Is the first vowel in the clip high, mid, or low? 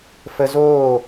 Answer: mid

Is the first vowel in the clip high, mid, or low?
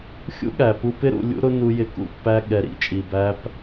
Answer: high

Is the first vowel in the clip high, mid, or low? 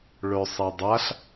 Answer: mid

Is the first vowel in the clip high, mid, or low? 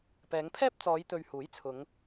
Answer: mid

